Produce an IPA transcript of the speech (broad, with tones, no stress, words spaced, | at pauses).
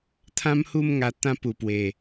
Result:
t̪ʰã˦mhu˥˧m ŋa˧t̪ã˥˧ pu˨˩pwe˨˩